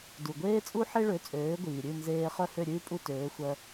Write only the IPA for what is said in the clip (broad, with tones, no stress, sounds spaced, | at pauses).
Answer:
d u˩ ɡʷ eː˥ t͡sʼ u˥ ħ e˥ ɭ ø˩˥ t͡sʼ øː˩˥ ɡʷ iː˩ ɾʲ ʉ˥˩ n z eː˧ χ œ˥˩ h ø˥˩ ɾʲ ʉː˥ pʼ u˥˩ t øː˩˥ xʷ œ˧